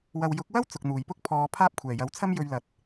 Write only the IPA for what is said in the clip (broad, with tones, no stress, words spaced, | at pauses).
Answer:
wɐ˨wjʊ˨˥k̚wɐ˥w t͡sʊ˨k̚n̪uː˨˩jpʊ˥k̚ pʰɔː˨˧ pʰaː˥p̚ kʷʰɛː˨˩jɐ˨˥wt͡sʰɐ˥m jɵ˧ɥlɐ˨˥t̚